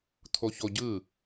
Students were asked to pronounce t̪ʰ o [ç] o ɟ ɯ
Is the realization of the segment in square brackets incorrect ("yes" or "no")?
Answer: no